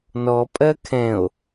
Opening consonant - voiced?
yes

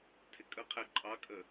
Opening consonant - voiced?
no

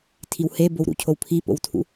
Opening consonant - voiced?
no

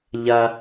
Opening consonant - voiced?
yes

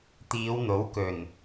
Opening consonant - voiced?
no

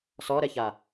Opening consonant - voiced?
no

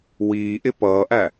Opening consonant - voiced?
yes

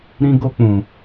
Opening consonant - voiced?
yes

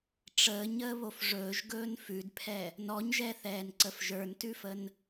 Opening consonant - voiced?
no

